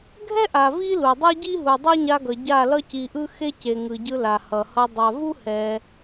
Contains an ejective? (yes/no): no